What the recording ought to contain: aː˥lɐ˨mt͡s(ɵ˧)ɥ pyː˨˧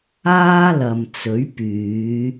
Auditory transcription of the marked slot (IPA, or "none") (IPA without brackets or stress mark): ɵ˨˥